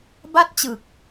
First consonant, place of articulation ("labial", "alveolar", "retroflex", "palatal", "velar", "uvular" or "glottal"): labial